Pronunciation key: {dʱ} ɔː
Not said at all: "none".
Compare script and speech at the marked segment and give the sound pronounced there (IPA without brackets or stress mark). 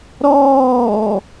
ɾ